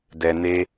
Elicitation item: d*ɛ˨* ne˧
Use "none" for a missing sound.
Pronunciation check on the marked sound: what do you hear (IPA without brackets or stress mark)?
ɛ˨